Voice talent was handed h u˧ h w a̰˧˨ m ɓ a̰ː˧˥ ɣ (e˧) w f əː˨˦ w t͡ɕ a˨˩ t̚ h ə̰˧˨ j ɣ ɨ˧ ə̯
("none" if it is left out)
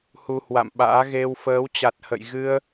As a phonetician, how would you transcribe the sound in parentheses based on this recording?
e˧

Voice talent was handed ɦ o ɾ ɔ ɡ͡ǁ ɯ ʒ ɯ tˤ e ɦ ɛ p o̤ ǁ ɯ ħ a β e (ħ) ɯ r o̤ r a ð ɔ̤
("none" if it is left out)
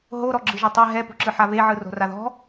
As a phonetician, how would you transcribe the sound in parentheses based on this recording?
ʕ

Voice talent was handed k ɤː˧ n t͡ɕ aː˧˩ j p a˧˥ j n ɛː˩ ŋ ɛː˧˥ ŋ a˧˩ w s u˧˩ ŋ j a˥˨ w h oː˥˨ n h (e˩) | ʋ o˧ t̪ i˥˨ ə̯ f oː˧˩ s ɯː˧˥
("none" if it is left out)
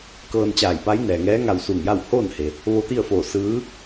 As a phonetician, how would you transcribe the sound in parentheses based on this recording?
e˩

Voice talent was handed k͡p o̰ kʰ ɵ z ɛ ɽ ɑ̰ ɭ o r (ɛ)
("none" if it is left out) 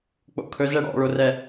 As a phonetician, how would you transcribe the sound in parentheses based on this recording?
ɛ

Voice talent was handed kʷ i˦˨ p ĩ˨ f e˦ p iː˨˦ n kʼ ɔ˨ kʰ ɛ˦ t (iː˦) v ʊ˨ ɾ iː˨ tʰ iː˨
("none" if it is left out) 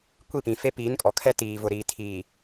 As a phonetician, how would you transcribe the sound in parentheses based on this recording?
iː˨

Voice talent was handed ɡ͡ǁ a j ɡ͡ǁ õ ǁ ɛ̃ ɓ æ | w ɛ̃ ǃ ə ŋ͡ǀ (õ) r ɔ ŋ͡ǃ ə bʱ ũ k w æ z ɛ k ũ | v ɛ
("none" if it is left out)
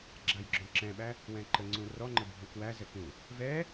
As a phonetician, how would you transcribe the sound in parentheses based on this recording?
ũ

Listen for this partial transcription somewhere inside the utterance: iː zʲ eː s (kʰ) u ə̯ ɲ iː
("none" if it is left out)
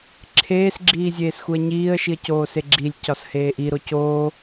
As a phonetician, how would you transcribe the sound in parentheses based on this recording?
x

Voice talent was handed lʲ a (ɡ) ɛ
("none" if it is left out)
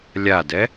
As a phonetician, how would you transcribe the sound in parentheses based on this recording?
d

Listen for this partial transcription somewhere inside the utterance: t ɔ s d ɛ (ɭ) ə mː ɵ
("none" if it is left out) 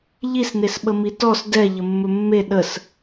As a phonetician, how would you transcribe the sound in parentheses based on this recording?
ʎ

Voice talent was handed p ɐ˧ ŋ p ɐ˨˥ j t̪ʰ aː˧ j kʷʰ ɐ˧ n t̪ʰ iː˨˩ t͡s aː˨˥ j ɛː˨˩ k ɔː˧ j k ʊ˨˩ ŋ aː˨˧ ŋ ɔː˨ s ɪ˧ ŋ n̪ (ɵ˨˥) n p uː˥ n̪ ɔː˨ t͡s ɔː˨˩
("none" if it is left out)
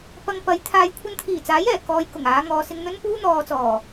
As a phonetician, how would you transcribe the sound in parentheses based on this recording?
ɵ˥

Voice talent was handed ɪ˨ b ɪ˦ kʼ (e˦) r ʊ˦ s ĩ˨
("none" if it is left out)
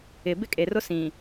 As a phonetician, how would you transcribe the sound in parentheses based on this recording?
e˨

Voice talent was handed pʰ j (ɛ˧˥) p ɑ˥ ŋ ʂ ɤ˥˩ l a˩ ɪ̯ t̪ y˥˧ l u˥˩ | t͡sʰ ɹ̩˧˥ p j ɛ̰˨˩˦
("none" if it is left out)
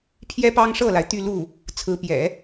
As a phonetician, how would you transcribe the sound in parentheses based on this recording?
ɛ˥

